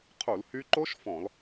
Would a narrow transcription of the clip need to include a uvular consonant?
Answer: yes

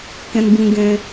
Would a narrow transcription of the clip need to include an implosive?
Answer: no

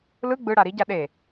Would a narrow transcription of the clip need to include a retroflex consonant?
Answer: yes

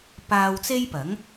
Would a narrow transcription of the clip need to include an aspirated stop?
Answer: no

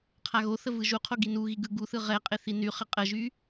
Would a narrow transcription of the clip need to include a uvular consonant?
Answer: yes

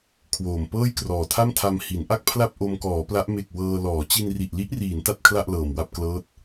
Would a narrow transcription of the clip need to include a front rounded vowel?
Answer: no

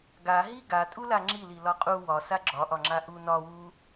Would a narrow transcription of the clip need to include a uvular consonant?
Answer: yes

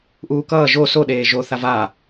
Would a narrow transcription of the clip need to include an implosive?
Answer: yes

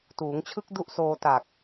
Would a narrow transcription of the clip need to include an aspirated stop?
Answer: yes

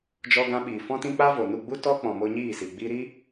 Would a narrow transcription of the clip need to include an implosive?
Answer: yes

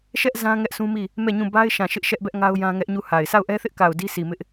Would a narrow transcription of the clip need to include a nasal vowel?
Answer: yes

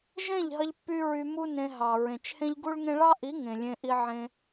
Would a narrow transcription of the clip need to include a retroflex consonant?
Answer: yes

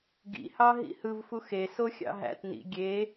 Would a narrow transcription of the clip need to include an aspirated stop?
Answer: no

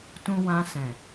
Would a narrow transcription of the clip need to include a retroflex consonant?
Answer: no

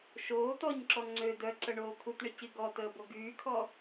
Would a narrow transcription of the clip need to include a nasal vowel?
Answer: no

